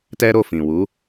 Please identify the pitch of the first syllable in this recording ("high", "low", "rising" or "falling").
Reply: high